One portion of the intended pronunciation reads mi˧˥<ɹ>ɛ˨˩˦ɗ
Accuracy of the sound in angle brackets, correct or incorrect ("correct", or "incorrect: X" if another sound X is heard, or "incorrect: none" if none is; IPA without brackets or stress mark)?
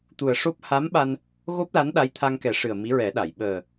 correct